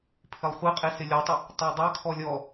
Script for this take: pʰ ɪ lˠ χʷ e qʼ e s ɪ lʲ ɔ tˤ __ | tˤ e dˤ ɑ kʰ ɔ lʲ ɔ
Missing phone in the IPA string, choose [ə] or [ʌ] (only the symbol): ə